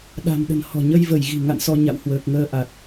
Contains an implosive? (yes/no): yes